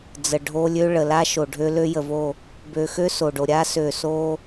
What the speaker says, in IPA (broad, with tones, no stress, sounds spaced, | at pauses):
d͡z ə˨ ɖʱ o˦ lʲ ø˦ ɭ ə˨ l a˦ ʃ o˨ ɖʱ ø˦ l ø˦ j ə˨ v o˦˨ | b ø˨ x ø˦ s o˨ ɖ o˨ ɾʲ a˦ s ø˨ s o˦